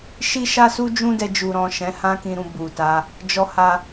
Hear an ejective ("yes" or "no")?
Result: no